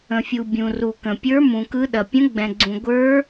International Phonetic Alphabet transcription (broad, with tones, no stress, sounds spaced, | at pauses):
ə̃˩ fʲ u˩ bʲ ũ˩ r u˩ k ə̃˩ pʲ ə˞˧˥ m ũ˩ k ɯ˧˥ ɗ ɐ˩ pʲ ə̃˧˥ ɡ͡b ɛ̃˩ ɡ͡ǀ ũ˩ ɡʷ ə˞˧˥